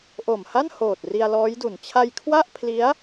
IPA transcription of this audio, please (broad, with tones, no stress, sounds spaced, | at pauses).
ʔ o˨˩ m h a˥˩ n h oː˨˩ t̚ r i˧ a̯ l ɔː˦˥ j d u˨˩ n t͡ɕʰ a˧ j kʰ w a˥˩ ʔ pʰ l i˦˥ a̯